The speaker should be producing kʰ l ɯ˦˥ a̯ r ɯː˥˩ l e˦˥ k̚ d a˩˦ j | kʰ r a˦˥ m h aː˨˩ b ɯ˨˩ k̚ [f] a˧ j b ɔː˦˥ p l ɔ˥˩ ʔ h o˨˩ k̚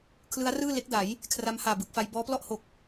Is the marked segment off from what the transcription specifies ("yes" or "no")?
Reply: no